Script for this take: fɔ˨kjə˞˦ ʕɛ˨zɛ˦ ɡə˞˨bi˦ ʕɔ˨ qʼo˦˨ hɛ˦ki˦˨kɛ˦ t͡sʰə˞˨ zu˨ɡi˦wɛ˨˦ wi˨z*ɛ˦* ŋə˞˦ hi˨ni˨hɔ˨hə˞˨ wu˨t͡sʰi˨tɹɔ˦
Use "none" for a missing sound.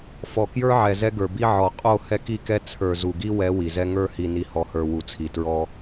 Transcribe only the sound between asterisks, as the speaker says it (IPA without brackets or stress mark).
ɛ˦